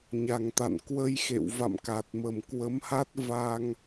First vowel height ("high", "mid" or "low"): low